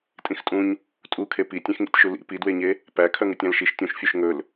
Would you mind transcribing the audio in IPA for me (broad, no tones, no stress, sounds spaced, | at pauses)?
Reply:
tʼ ĩ x tʼ ũ ɲ | tʼ u kʰ e p i tʲ ẽ x ŋ ḭ tʲ ʃ u l ḭ p i d w e ɲ e | p æ kʰ œ ŋ ʉ tʲ æ̃ l ʃ i ʃ tʲ ũ ʃ fʲ ʉ ʃ ŋ ɵ l